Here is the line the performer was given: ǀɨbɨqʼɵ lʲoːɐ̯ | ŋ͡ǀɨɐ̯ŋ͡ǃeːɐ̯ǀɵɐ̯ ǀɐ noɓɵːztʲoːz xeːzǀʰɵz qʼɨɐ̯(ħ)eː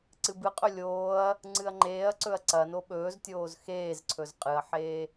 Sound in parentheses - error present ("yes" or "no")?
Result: no